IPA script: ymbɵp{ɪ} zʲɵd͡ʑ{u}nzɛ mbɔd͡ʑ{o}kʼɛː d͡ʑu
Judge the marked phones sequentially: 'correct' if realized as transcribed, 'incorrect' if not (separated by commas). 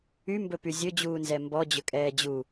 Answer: incorrect, incorrect, incorrect